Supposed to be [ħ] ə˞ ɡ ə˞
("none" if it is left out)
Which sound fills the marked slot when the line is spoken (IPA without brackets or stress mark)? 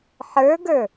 ħ